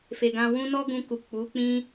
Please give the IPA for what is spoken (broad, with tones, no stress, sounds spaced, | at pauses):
f e˨ ɡ ã˧ w ũ˦ n ɔ˦ ɡ ũ˧ k u˨ k͡p u˨˦ k͡p ĩ˦